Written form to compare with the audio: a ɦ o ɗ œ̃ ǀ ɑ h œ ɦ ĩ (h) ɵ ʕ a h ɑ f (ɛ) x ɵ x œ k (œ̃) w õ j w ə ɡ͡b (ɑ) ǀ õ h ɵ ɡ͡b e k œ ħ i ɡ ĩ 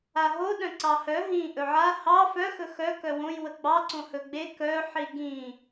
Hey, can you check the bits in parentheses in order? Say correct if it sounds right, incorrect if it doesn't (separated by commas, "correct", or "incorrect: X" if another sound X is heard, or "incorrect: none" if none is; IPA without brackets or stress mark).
incorrect: ʔ, incorrect: œ, incorrect: œ, correct